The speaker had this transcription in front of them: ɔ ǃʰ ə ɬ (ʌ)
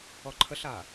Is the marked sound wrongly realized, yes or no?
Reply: yes